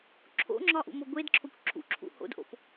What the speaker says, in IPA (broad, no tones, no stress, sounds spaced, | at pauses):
ǁʰ o̰ ŋ͡ǁ ɒ ʔ ṵ m o ɡʷ e d ǁʰ o kʷ ǁʰ ṵ ǁʰ ṵ h o̰ d ʔ o̰ p